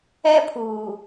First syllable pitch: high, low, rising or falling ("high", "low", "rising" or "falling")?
high